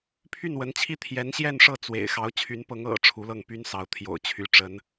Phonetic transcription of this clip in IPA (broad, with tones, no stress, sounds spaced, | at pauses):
pʰ y˥˩ n w ə˧˥ n t͡ɕʰ i˥˩ t̪ʰ j ɛ˧˥ n ɕ j ɛ˥˧ n ʂ ɤ˥˩ t͡s w ḛ˨˩ ɪ̯ x ɑ˧˥ ʊ̯ t͡ɕʰ y˧˥ n p ɤ˧˥ ŋ ɤ̰˨˩ ʈ͡ʂʰ u˧˥ l ɤ˥˩ ŋ p y˥ n s ɑ˧˥ ʊ̯ t̪ʰ j o̰˨˩ ʊ̯ t͡ɕʰ y˧˥ ʈ͡ʂ ə˧˥ n